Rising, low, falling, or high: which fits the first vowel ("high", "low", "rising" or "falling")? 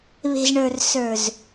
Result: low